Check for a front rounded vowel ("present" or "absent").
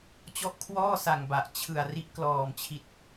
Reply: absent